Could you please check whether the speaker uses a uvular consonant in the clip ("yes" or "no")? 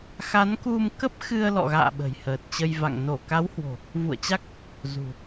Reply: no